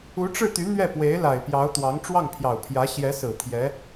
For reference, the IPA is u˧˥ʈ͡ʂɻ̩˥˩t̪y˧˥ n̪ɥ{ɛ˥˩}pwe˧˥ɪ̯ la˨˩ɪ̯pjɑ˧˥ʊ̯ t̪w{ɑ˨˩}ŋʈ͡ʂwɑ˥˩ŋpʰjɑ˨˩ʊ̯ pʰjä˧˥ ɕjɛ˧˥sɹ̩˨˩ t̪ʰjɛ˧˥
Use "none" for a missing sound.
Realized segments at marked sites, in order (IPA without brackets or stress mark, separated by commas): ɛ˥˩, ɑ˧˥